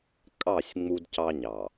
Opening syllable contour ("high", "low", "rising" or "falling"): falling